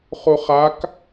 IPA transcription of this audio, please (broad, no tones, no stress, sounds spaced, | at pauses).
χ u χ a k